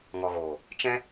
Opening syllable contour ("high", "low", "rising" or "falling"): low